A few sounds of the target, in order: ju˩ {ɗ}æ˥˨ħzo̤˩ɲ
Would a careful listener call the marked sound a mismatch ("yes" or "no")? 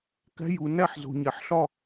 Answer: yes